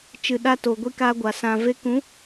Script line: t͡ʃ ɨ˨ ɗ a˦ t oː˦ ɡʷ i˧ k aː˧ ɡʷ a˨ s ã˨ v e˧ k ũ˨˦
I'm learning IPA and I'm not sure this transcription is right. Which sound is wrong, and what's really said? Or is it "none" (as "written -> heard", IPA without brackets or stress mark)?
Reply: oː˦ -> oː˨